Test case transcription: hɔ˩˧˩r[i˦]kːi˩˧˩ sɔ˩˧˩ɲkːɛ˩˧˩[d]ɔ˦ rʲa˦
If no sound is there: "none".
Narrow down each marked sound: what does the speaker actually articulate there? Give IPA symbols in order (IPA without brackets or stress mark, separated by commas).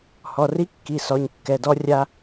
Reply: i˦, d